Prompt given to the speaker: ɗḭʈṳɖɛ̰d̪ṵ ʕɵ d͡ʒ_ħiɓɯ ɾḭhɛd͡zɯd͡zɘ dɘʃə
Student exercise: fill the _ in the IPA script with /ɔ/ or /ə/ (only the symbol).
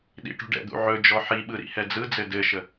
ɔ